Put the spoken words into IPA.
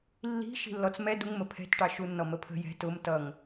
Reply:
lː i̤ ʃ i̤ lː ɔ t͡s m ɛ d u ŋ m ə pʰ ɛ̤ t ʈ ɑ ʃ u nː ɔ m ə pʰ ə̤ j ɛ̤ t ʊ m t ʌ ŋ

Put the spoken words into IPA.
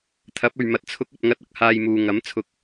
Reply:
t̪ʰ ɐ˨˥ p̚ ɵ˨ ɥ m ɐ˨ t̚ t͡sʰ ʊ˨˥ k̚ ɵ˨ t̚ ŋ ɐ˧ t̚ ɐ˧ k̚ h aː˧ j m uː˨ ŋ ɐ˨˥ m t͡sʰ ʊ˨˥ k̚

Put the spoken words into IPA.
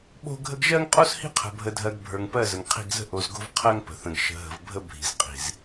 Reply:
ɓ o̤˦ ɡʱ ə˦ ɡ ʒ ɜ˦ ŋ qʼ o˦ s h i̤˦ qʰ ə̤˨ bʱ ə˨ dʱ ɜ˨ ɡ bʱ ə˞˨ ŋ p ɜ˦˨ z ə˨ ŋ qʰ i̤˦˨ ɡ z ə̤˦ ʔ o˨ z ɡ o̤˦ v qʰ ɜ˦ ŋ p ə̤˨ θ ə̃˨ ɡ ʃ ə̤˨ ɦ ə̤˨ v bʱ ə˦ bʱ i̤˨ z qʼ i̤˨ z

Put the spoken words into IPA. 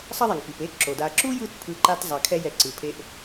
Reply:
sˤ ʌ˦ ðˤ ɛ˩ ŋ p i˩ p e˦ ǁ o˩ d a˨ ǁ u˥ j ɯ˦ t pʰ ɯ˦ ǃ a˥ t zˤ a˨ kʰ ɛ˦ j ɛ˨ ǀ ɯ˩ pʰ e˦ ʔ

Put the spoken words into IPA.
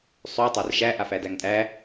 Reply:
sˤ ʉ tˤ æ r ʃ æ ʔ a f æ d æ ŋ tʼ æ

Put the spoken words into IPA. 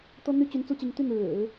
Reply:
t̪ ɤ˥ n̪ y˥ t͡ɕ y˧˥ n t͡s u˥ t͡ɕ i˧˥ ŋ t̪ y˥˩ n ɻ ɻ̩˨˩˦

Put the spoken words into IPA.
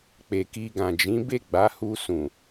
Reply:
k͡p e˨ k i˧ ɡ ã˨ d͡ʒ ĩ˨˦ b e˦˨ ɡ͡b a˨˦ h u˧ s ũ˨

